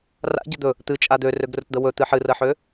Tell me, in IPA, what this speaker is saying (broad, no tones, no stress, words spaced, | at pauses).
ra̰ɟə d̪ɵ | t̪ɨt͡ʃʼa d̪ørøɡrɵtd̪ə wɵt̪ɨ ħɨrəħø